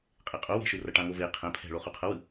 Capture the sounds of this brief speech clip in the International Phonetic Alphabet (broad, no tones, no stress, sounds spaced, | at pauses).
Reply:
qʼ e qʼ o w e̤ ʃ ɯ r ʌ ʈ ã ŋ o v e qʰ ɛ̃ pʰ ɛ̤ ɭ o χ u qʰ ʌ w ɯ